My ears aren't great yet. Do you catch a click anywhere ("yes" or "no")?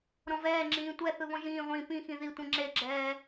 yes